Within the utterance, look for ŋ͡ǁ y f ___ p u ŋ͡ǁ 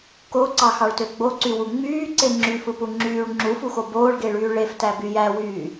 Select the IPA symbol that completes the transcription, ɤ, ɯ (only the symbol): ɯ